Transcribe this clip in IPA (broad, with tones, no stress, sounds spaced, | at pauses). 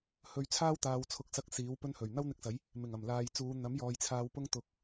h ɵ˧ ɥ t͡sʰ aː˥ w t̪ aː˨ w t͡sʰ ʊ˨˥ k̚ s ɐ˧ k̚ s iː˨˥ w p ɵ˥ n h ɵ˨˩ ɥ n̪ ɐ˥ w n̪ ɪ˧ k̚ s ɐ˨˥ j | m ɪ˨˩ ŋ ɐ˨˩ m l aː˨ j t͡s uː˨˧ n̪ ɐ˨˥ m j ɔː˨ j t͡sʰ aː˧ w p ʊ˥ ŋ t̪ ʊ˨˥ k̚